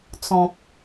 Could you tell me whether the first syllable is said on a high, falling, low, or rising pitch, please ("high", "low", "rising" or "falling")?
low